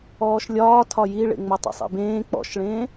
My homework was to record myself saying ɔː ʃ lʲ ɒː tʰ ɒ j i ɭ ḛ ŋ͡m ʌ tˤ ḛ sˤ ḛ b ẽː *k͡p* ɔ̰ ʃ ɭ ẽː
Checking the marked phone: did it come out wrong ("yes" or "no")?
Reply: no